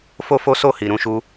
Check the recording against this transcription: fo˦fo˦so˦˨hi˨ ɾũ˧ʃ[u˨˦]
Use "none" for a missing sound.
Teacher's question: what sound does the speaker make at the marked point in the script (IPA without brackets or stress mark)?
u˦